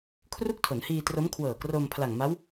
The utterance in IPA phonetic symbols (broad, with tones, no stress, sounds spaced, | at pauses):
kʰ r u˥˩ k̚ tʰ o˩˦ n h iː˧ t r o˦˥ m kʰ w ɤː˨˩ k r o˧ m pʰ l a˨˩ ŋ m a˦˥ w